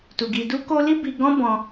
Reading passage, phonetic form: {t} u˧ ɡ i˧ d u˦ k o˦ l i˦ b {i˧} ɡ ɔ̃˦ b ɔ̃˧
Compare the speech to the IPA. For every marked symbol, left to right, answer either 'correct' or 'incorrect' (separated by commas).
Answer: correct, correct